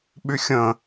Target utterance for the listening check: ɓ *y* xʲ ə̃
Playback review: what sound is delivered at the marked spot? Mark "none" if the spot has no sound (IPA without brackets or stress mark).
y